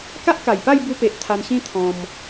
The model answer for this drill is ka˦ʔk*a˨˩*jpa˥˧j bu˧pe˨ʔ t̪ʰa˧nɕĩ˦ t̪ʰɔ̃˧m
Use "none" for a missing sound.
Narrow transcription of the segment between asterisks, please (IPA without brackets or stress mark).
a˨˩